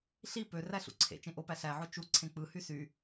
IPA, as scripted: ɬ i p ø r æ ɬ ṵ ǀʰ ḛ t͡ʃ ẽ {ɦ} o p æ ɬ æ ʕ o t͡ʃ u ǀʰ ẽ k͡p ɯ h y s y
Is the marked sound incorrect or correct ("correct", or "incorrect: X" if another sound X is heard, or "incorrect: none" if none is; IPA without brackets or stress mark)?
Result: incorrect: ʔ